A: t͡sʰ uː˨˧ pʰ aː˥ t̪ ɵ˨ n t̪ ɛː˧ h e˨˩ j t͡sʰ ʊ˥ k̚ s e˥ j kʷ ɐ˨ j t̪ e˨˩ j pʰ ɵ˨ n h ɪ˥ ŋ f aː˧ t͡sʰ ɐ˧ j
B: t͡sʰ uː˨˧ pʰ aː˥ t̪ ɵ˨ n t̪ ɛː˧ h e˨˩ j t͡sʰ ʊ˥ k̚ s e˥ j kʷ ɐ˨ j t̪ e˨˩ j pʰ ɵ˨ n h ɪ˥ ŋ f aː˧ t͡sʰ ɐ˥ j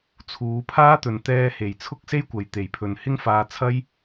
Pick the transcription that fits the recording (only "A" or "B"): B